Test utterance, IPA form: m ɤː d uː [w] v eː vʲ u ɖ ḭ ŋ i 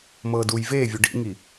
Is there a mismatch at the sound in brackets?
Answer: yes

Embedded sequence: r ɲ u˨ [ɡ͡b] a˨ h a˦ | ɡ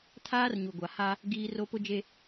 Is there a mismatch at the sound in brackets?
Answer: yes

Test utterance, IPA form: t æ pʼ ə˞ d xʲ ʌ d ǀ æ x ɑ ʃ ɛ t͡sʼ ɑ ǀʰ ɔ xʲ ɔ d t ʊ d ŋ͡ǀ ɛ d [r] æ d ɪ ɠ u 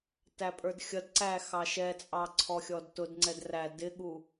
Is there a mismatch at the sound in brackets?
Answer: no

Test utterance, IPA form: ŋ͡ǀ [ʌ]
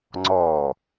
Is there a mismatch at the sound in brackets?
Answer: yes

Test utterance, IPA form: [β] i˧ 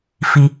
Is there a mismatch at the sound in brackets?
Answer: yes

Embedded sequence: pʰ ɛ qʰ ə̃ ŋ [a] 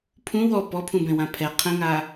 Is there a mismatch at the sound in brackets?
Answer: no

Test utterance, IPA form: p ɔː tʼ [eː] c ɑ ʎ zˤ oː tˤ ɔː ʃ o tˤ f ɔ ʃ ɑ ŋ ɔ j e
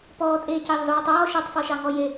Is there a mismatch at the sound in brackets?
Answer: no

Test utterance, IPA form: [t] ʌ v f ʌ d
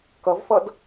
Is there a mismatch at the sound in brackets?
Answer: yes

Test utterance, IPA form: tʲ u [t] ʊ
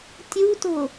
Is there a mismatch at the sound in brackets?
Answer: no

